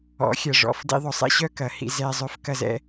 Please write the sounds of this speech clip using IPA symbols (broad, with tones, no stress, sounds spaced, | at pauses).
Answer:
ɔ̰˨˦ xʲ ɐ˨ ʐ ɔ̰˨ f d ḭ˧ ðˤ ʊ˨ sˤ ɛ̰˦ ɕ œ˦ k ɐ˨ h ḭ˧ z ɛ˦ zˤ œ˦ f k ɐ˦ z ɛ̰˦